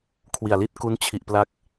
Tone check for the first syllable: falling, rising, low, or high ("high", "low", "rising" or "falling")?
low